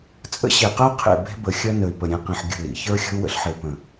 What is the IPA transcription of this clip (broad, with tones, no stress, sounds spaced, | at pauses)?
t͡sʼ ə̰˦ ɕ e˨ q ɜ˦ qʰ ḛ˦˨ b e̤˦ b ə˨ xʲ ɜ˦ n ə˨ y̯ p ə˨ ɾʲ ẽ˨ q ĩ˨ ħ ɡʲ ə̤˦˨ l ḭ˨ ç ə˞˦ xʲ ə̤˦ u̯ w ə̰˦ ɬ ħ e˨ p ə̃˨